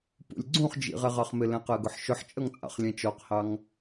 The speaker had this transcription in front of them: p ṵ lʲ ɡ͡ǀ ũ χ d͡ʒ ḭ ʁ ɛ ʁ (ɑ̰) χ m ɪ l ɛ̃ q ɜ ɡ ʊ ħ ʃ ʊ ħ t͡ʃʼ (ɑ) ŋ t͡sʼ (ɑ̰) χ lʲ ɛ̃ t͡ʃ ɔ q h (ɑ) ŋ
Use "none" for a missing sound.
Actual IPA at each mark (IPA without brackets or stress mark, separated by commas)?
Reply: ɑ, ʌ, ɑ̰, ɑ